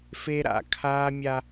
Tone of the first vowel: high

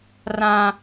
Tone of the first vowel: low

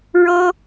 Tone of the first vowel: high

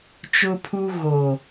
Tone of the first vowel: high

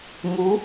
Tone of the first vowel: rising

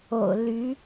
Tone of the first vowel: low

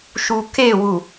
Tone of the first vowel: low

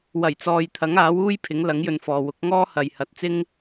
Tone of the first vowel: low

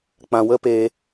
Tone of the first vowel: low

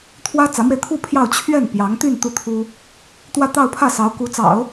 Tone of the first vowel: high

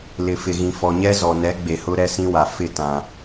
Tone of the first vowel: low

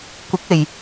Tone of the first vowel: rising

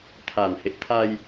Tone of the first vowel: low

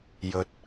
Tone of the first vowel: low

